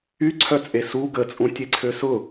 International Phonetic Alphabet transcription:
y ǀʰ œ t͡sʼ e s u ɡ ə t͡sʼ ũ tʲ e ǀʰ ø s ʊ

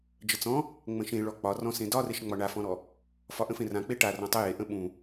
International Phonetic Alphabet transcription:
d͡ʒ ə t͡s ɔ̃ | ŋ͡m ə̃ ʃ ẽ ɭ ɔ k͡p ɒ r ɔ̃ s ẽ d ɒ r e ʃ ŋ͡m ɒ ɳ a f ɔ̃ ɾ ɔ | f ɒ ʔ ə̃ f ẽ r ã k͡p e ʈ a r ɔ̃ tˤ ə j e ʔ ə̃ ɓ ũ

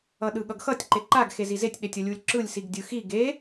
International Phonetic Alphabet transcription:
ʌ ɗ ɯ ɠ ʌ ɡ x ʌ tʲ ǃ e ǃ a ɡ x e z i z e tʲ ɗ e tʲ ʌ lʲ u lʲ ǁ ɯ lʲ s i ɡ dʲ ɯ x i ɡ e

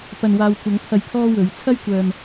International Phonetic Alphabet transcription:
p ɐ˨ n w aː˨ w kʷ ɐ˨˧ ŋ pʰ ɐ˧ j kʰ ɔː˥ w ɵ˨˧ ɥ t͡sʰ ɐ˥ j kʷ œː˨ m

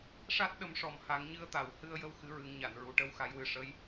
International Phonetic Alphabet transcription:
ʂ a˦˥ t̚ ɗ ə˨˩˦ m ʂ ɔ˨˩ m h a˨˩˦ ŋ ɲ ɨ˧˥ ə̯ t̪ a˨˩˨ w h ɨ˧ ə̯ j ə˧ w x ɨ˧˥ ɹ ɨ˨˩˦ ŋ ɲ a˨˩˨ n ɹ u˨˩ ʈ ə˧˥ w x a˨˩˦ j w ɨ˨˩ ʂ ə˧˥ j

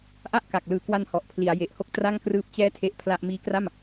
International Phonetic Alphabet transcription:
ʔ a˥˩ ʔ k a˨˩ k̚ l ɯː˨˩ k w a˧ n h ɔ˨˩ ʔ pʰ l i˩˦ a̯ j e˨˩ ʔ h o˥˩ k̚ t r a˥˩ ŋ k r ɯː˦˥ p̚ t͡ɕ ɛː˦˥ tʰ e˥˩ ʔ pʰ l a˥˩ ʔ m iː˦˥ k r a˥˩ m

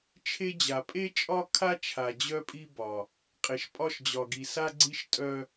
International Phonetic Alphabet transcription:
t͡ʃʰ e˦ d͡ʑ a˨ pʼ e˦ t͡ʃʼ ɒ˦ kʰ a˦ t͡ʃʰ a˨ d͡ʑ œ˦ pʼ i˦ b ɒ˨ | qʼ e˨ ʃ pʼ ɒ˦ ʃ d͡ʑ ɒ˨ ɡ i˨ s a˦ ɡ͡ǀ i˦ ʃ tʼ œ˦

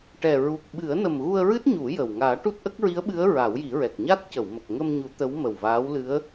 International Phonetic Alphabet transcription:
ʈ ɛ˨˩ ɹ u˨˩ k̚ ɓ ɨ˨˩˦ ə̯ n ə˨˩ m ɣ u˧ ə̯ ɹ ɨ˦˥ t̚ ɲ u˨˩˦ j ə˨˩ w ŋ aː˨˩˦ ʈ u˦˥ t̚ ʔ ə˦˥ k̚ ɹ i˧˥ ə̯ ɓ ɨ˧˥ ə̯ ɹ a˨˩˦ w j i˨˩˦ ɹ ɛ˨˩ k̚ ɲ a˦˥ t̚ c ə˨˩˨ w m ə˨˩ k̚ ŋ ə˧ m ɲ u˨˩˦ t̪ ə˧˥ w m ə˨˩ w v aː˧˥ w l ɨ˧˥ ə̯

